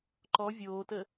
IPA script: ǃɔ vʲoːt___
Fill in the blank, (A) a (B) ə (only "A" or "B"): B